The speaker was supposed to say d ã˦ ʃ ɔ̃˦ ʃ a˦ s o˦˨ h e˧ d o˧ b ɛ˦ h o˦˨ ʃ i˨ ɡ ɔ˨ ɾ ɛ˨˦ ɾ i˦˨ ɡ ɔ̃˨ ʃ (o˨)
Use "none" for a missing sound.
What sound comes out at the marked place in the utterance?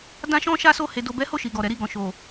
o˨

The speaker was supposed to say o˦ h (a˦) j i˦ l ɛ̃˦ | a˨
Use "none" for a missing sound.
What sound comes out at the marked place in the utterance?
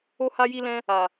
a˦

